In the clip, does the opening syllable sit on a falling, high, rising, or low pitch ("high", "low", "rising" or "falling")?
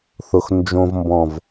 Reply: low